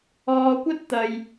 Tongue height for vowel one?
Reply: mid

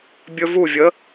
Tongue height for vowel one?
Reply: mid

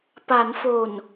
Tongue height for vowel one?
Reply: low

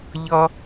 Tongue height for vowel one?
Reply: mid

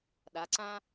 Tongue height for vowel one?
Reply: low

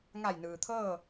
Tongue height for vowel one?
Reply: low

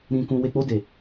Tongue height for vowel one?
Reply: high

